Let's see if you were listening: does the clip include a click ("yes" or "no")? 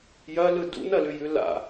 no